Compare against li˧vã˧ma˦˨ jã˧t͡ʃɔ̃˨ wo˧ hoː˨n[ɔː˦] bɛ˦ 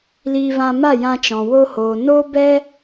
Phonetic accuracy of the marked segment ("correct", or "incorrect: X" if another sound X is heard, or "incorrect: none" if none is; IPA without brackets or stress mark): incorrect: oː˦